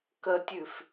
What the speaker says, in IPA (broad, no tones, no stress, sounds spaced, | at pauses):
k ə tʲ ʉ f